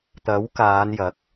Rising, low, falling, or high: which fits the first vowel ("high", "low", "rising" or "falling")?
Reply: rising